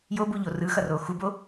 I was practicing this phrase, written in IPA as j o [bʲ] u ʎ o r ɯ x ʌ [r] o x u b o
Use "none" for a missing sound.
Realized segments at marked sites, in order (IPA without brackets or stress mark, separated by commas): b, r